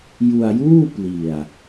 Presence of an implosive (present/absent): absent